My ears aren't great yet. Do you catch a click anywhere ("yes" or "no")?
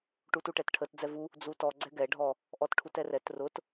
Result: yes